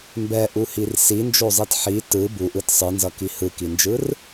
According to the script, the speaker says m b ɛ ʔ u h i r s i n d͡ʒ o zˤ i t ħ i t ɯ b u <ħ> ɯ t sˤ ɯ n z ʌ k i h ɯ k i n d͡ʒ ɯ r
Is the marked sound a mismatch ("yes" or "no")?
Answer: yes